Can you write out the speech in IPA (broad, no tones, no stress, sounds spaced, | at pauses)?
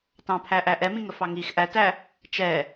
t ɑ̃ pʰ æ ʔ æ ʔ ɛ m ĩ ŋ ə f ɑ ŋ i x ʔ æ t æ | t͡ʃ ɛ